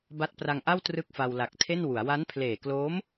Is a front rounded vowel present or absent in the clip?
absent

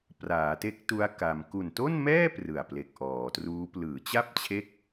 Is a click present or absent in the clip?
absent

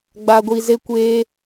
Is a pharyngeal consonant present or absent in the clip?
absent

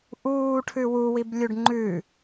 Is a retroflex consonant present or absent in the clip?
present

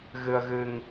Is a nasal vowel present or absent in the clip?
absent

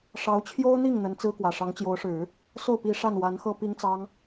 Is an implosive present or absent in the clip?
absent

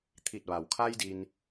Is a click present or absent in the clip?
absent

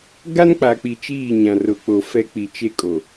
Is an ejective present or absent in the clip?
present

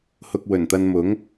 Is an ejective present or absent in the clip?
absent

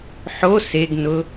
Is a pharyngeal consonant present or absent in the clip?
present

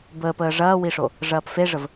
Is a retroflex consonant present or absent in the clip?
present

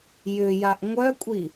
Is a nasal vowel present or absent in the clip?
absent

